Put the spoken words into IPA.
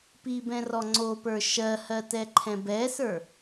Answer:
p i b ɛ̃ r ɔ ŋ͡ǀ o p ə˞ ʃ ɜ h ɜ t ɛ ǃʰ ɛ̃ b ɛ s ə˞

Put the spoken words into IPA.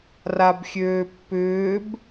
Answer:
r a b xʲ øː pː ʏː b

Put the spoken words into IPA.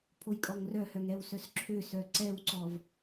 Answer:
pʰ o j kʼ ɔ ŋ r œ h œ ŋ ɛ w s œ s ǁʰ ø s œ ǀ ɛ w ǀ ɔ v

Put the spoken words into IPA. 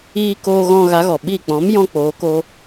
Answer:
iː˧ k oː˧ ɣ ɔ̃˧ ɣ a˨˦ ɣ ɔ˨ ɓ iː˦˨ k͡p ɔ̃˨˦ m j ɔ̃˦ k͡p oː˨˦ k oː˦

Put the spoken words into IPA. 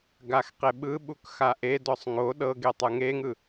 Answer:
ɡ a x q e ɓ ɯ ɓ u k x a ʔ e d ɔ sˤ ŋ o ɗ ɤ ɡ e tˤ ɯ ŋ e ŋ ɯ

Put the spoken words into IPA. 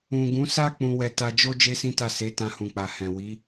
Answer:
ũ˨ ɡ ũ˨˦ s a˦ k͡p ũ˧ w ɛ˧ t a˧ d͡ʒ o˦ d͡ʒ e˦ s ĩ˦ t a˦˨ s e˨˦ t ã˧ h ũ˨ k͡p a˨ h ɛ̃˨ w i˨˦

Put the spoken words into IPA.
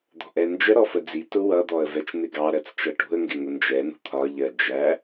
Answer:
d̪ ɔ̤ ʔ ɛ n d͡ʒ ə ɾ ɔ f ə d͡z i t ʊ w ʌ d̪ ɔ ə̯ v ɛ t͡ʃ n̪ ɪ ɡ ɑ ɾ ɜ t͡s t͡ʃ ʌ ʈ ṳ ə̯ ŋ ɡ ɪ ŋ ʊ n d͡ʒ ɛ n ṳ t̪ʰ ɒ ʎ ɜ d͡ʒ æ

